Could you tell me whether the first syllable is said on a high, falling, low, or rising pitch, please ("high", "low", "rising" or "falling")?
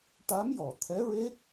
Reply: rising